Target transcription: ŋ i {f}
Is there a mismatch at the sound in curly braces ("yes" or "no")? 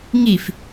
no